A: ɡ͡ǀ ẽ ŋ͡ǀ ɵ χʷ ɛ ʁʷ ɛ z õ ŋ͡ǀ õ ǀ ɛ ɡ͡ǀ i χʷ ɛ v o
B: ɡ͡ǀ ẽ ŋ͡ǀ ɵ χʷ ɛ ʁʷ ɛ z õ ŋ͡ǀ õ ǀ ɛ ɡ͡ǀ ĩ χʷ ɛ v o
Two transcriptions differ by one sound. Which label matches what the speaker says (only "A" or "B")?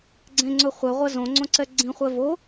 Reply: B